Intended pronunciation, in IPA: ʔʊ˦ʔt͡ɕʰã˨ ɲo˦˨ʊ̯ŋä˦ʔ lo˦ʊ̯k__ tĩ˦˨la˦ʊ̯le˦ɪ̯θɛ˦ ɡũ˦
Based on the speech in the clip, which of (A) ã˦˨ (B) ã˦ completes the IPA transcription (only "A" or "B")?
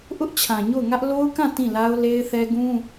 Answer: A